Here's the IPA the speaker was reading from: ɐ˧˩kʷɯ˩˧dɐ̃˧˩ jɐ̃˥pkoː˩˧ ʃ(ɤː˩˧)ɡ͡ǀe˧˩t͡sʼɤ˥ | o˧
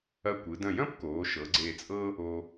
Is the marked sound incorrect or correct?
incorrect